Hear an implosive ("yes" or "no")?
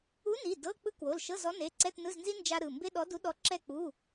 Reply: yes